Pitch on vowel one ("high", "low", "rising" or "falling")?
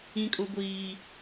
high